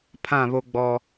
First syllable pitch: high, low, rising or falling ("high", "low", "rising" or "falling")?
falling